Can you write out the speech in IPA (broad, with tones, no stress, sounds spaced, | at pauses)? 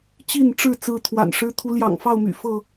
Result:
t͡ɕ i˥˨ n ʈ͡ʂ ɻ̩˥˨ t͡s ɹ̩˥˨ t̪ʰ w a̰˨˩ n ʂ ɻ̩˦ t̪ʰ u˨˦ l j ɑ̰˨˩ ŋ f ɑ˥˨ ʊ̯ m y̰˨˩ f ɤ˥˨